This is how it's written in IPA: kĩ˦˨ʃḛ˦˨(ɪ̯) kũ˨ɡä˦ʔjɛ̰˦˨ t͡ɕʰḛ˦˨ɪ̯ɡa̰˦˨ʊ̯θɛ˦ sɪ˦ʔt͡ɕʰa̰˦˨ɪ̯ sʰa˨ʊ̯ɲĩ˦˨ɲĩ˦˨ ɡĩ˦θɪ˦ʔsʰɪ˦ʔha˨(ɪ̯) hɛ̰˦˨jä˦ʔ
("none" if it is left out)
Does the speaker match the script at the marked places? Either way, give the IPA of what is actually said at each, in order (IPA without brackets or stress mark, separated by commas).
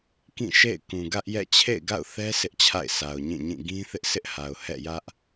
ɪ̯, ʊ̯